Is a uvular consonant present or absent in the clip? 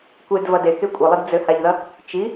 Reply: absent